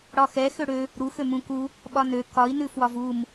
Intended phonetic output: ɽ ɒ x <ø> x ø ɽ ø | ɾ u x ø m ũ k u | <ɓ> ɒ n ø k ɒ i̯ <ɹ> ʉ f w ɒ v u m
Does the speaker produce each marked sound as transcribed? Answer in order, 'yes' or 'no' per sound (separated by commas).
no, yes, no